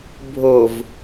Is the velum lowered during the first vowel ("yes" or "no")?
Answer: no